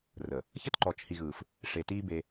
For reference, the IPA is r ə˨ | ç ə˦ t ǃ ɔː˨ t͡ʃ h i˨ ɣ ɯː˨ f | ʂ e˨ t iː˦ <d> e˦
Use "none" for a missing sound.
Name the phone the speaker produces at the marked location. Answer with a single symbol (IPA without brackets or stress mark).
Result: b